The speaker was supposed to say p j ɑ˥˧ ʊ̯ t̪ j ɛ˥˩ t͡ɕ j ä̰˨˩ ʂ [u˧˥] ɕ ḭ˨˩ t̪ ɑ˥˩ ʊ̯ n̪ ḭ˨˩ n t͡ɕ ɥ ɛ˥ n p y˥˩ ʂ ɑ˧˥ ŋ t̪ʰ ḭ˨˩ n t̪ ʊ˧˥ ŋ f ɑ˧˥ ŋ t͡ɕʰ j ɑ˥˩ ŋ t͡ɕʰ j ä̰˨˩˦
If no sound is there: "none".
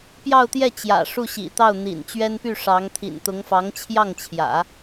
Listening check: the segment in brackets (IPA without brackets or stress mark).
u˥˩